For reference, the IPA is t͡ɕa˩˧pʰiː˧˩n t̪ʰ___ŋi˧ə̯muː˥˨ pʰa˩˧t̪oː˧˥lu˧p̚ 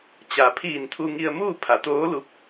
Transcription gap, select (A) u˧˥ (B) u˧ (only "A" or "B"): B